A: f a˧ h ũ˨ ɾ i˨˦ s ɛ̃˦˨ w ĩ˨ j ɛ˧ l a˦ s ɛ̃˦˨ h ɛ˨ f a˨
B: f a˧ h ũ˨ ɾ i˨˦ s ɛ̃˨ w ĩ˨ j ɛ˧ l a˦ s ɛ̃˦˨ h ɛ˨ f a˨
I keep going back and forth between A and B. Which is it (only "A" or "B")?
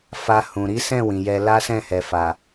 A